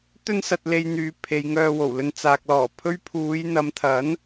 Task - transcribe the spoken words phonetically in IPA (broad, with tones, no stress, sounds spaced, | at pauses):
t̪ ɵ˥ n s ɐ˧ t̚ l e˧ j n̪ yː˨˧ pʰ e˨˧ j ŋ œː˧ w o˨˩ w l ɵ˧ n t͡s aː˨ k̚ l ɔː˨˩ pʰ ɵ˥ ɥ pʰ uː˨˧ j n̪ ɐ˨˧ m t̪ʰ ɐ˨˥ n